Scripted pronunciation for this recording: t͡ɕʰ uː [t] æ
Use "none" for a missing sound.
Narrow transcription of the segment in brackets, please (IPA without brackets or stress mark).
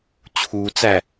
t͡s